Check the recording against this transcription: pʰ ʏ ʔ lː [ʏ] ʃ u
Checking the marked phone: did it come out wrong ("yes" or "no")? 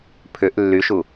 yes